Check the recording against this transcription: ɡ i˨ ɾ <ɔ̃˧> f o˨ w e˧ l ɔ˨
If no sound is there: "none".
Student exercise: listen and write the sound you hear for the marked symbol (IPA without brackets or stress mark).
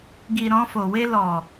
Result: ɔ̃˧